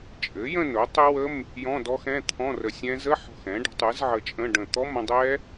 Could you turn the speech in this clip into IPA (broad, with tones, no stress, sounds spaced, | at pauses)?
t͡ʃʼ ɘ˩˥ j ə̃˥˧ n ʊ˩˥ tˤ ɘ˦˥ w ə˧˥˧ m | j ɔ̃˧˥˧ d ɔ˦˥ x ɛ̃˧˥˧ t̪ʰ ɔ̃˧˥˧ r ə˧˩ sʲ ɛ̃˦˥ z ə˧˥˧ ħ ɔ̤˧˩ x ɛ̃˩˥ ɖ ə̤˩˥ tˤ ɯ˩˥ z ʕ ə˧˩ t͡ʃʼ ə̃˧˥˧ ɖ ə̃˧˩ t̪ ɔ˧˥˧ m ə̃˥˧ dˤ ɛ˦˥